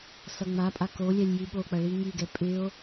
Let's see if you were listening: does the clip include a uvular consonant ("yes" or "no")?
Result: no